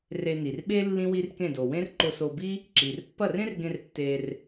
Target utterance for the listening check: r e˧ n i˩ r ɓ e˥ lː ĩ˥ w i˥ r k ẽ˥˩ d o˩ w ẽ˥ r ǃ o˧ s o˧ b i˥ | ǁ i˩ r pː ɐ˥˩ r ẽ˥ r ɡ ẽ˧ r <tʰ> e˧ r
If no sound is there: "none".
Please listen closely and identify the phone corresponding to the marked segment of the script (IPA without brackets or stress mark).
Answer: tː